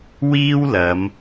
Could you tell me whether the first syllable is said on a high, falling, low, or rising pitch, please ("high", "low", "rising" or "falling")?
high